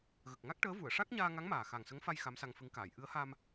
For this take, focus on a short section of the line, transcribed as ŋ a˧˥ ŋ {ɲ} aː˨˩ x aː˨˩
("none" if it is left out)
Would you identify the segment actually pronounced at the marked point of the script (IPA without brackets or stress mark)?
m